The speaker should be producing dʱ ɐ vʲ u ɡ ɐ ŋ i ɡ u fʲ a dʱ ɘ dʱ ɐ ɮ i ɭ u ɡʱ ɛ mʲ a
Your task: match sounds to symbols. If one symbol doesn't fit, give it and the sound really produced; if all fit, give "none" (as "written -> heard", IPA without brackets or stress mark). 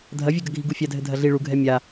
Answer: ŋ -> ɡʱ